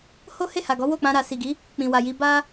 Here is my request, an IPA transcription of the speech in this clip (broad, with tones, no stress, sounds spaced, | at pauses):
h o˦ h e˦˨ h a˨ ɡ ɔ˨˦ w o˦˨ k͡p ã˧ ɾ a˨ s i˨ ɡ i˨˦ | k͡p ĩ˨ w a˨ j i˧ b a˦